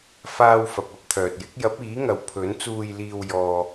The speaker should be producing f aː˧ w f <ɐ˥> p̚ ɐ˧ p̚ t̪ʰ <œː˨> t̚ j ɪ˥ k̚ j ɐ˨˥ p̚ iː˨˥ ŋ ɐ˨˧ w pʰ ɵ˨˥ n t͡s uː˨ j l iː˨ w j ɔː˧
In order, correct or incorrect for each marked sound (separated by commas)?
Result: incorrect, correct